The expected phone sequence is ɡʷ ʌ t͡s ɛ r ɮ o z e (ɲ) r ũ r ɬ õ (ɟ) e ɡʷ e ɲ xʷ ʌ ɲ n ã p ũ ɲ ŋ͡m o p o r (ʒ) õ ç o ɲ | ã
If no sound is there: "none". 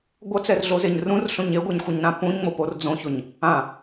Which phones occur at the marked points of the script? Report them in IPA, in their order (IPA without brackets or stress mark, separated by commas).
ɲ, ɲ, d͡z